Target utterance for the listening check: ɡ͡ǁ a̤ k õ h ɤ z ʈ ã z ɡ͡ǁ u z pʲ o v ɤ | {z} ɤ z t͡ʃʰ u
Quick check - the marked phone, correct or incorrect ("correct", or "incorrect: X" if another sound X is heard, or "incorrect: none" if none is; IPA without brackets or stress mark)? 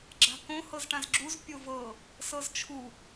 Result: incorrect: s